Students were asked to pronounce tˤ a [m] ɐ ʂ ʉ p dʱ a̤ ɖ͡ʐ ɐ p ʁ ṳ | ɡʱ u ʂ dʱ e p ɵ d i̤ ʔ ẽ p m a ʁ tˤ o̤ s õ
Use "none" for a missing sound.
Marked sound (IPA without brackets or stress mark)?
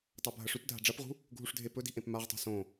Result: bʱ